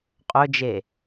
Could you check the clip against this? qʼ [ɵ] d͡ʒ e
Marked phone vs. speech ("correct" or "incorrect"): correct